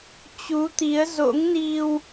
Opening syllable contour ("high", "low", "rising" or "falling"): rising